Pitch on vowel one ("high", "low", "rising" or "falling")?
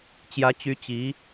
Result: rising